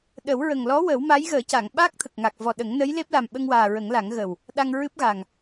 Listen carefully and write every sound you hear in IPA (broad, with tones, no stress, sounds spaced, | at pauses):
ɗ ə˨˩˦ w ɹ ə˨˩ ŋ l ɔ˧˥ w ə˨˩˦ w m a˧˥ j ɣ əː˨˩˦ c a˨˩˨ ŋ ɓ aː˦˥ k̚ t̪ʰ ə˨˩ k̚ ŋ a˨˩ k̚ v ɔ˨˩ ɗ ə˨˩˦ ŋ n ə˧˥ j l e˦˥ p̚ l a˨˩ m ɓ ə˧ ŋ w aː˨˩ ɹ ə˨˩˦ ŋ l a˨˩˦ ŋ ɣ ə˨˩ w | ɗ a˧ ŋ ɹ ɨ˦˥ p̚ ɣ a˨˩ ŋ